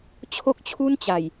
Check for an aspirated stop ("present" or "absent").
present